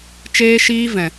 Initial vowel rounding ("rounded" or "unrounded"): unrounded